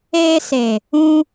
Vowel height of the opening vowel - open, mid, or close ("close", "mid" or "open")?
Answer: mid